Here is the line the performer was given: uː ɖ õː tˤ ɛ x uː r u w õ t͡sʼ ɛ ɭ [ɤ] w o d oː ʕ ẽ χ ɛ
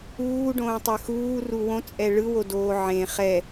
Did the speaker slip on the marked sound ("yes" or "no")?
yes